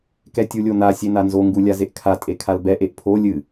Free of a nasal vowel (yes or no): yes